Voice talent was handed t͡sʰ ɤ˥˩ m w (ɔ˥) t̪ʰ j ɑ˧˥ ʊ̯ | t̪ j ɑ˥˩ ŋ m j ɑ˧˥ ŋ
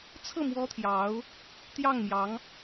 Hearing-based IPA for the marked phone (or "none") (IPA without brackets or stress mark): ɔ˥